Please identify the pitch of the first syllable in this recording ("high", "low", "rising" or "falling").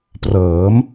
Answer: rising